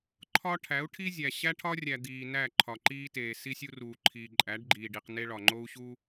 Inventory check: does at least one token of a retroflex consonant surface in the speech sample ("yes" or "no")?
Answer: yes